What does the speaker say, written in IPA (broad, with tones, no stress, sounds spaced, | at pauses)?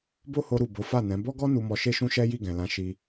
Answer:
b o˦ h o˧ ɾ u˨ b o˨˦ f a˦˨ n ɛ̃˨˦ b ɔ˦ ɡ ɔ˦ n u˧ m ɔ˧ ʃ e˦ ʃ ũ˦ ʃ ɛ˦ j i˦˨ ɡ ɛ̃˨ l ã˨˦ ʃ i˧